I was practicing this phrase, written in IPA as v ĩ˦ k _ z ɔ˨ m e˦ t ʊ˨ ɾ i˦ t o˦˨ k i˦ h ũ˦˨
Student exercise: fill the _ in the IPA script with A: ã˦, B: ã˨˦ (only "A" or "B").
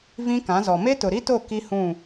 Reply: B